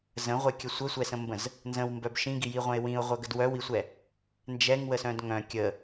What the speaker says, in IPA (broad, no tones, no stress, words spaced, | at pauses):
zə̃ʁʷɛkʲə sʷəsʷɛsə̃mbə̃z | nzə̃wmbœb ʃĩɡijiʁʷɛ̃ɪ̯ wĩʊ̯ʁʷœɡəd wœwisʷɛ | nd͡ʒɛŋwəsœ̃d ŋœ̃ kʲə